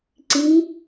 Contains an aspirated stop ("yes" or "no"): no